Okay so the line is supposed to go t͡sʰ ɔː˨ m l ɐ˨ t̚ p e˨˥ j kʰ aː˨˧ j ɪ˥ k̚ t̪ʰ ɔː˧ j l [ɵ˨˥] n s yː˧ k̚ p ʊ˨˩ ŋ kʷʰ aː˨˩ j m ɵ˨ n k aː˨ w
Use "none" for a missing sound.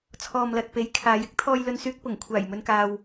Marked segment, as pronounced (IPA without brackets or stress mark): ɵ˧